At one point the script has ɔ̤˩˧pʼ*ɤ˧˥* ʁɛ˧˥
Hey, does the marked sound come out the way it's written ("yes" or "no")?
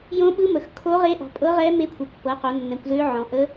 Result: yes